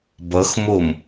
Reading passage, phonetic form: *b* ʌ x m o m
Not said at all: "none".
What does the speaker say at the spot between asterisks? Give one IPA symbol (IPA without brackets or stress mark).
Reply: b